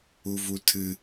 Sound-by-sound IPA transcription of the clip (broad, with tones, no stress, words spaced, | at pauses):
u˦vu˦ tʰɨ˦